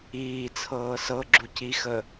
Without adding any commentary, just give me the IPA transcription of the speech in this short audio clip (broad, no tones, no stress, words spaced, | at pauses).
iːt͡sʰɤː sɤ ɡ͡ǁucixə